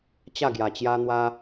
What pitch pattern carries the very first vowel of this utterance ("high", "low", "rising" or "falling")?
falling